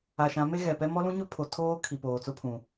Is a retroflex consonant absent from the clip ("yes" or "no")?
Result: yes